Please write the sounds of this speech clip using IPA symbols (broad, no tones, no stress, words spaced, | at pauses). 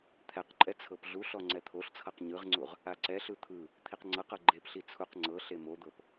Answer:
t̪ʰɛqǃʼɛ t͡sʰɤpɮuɬɔ ŋ͡ǀɛt̪ʰoɬt͡sʰɤq ɲɯʁŋ͡ǀuʁ | aǀɛɬɯ t̪ʰɯ | t̪ʰiqŋ͡ǀɤqɤ ɡ͡ǃepɬi t͡sʰuq ŋ͡ǀɤɬe mod̪ɤp